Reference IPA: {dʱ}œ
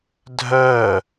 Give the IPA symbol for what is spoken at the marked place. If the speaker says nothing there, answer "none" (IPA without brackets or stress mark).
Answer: dʱ